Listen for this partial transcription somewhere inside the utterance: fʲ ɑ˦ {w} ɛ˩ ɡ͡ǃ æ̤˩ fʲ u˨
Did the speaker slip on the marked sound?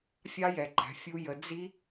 yes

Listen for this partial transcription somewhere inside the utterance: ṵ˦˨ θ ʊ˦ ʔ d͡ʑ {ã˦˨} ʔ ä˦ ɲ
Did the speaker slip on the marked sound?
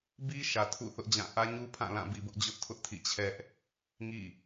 no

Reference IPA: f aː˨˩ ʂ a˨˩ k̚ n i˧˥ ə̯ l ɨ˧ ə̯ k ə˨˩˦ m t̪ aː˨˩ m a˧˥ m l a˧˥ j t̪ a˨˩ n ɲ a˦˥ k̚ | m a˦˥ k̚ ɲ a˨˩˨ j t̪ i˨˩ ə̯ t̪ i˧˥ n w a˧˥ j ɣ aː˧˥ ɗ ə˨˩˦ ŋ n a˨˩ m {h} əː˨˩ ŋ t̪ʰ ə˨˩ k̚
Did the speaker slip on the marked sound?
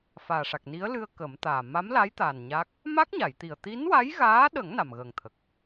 yes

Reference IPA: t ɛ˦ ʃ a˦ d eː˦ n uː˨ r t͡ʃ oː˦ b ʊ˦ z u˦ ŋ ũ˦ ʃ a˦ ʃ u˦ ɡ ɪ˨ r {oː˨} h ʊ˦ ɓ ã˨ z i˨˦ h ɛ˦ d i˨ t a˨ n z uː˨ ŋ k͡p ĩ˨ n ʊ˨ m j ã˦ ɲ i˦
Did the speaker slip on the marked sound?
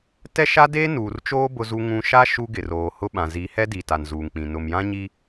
no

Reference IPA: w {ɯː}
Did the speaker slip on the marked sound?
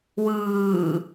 no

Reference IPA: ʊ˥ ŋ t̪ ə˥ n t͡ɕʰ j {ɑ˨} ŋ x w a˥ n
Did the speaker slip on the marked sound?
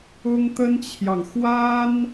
no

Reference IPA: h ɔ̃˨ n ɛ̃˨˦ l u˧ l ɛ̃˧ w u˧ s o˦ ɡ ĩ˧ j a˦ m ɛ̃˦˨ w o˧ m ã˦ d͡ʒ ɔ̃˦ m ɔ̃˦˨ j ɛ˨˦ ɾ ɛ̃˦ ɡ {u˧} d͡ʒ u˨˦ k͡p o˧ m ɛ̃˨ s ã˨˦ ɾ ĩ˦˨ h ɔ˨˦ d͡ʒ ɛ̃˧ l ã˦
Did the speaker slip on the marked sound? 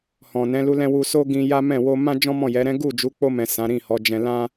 yes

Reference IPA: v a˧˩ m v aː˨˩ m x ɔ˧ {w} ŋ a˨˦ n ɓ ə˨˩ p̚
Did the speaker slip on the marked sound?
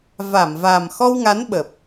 no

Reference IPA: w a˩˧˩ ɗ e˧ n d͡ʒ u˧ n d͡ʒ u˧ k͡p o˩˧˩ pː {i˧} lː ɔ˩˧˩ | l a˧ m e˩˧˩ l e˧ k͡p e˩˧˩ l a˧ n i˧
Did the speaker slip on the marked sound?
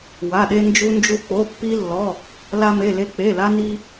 no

